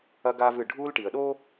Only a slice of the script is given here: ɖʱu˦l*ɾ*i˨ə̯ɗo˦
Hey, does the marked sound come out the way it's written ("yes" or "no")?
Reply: no